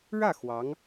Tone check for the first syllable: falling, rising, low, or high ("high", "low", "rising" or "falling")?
falling